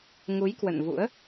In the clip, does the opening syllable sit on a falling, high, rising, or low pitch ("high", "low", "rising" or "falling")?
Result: rising